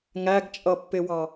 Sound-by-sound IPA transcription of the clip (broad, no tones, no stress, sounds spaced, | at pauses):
ŋ æ ɡ t͡ʃʼ ʌ pː ɪ w ɑ